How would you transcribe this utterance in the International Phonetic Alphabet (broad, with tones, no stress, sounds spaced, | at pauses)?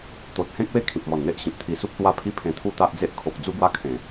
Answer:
t̪ o˨ t̚ h ẽ˦ k̚ w e˥˧ kʰ ĩ˨ p̚ m ɔ˨˩ n n̪ e˦ ʔ ɕ ĩ˨ p̚ t̪ʰ i˧ s u˦ p̚ t̪ w a˦ pʰ i˦ pʰ ẽ˧ t̪ʰ u˥˧ t̪ a˦ ʔ d͡z e˦ ʔ kʰ o˨ k̚ d͡z u˦ ɡ w a˥˧ kʰ ẽ˨˩